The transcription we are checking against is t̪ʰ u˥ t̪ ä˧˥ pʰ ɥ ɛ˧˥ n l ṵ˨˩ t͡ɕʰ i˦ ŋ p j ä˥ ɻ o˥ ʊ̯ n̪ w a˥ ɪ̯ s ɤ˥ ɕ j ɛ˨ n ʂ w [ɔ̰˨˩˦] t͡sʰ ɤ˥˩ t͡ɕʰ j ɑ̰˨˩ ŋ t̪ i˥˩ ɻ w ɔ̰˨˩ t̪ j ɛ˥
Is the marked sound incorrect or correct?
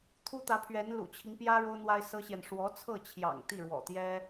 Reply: incorrect